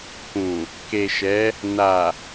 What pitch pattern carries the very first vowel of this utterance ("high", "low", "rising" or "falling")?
low